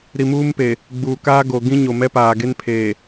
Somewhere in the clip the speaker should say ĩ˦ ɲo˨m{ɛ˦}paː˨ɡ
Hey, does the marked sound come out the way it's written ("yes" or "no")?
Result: yes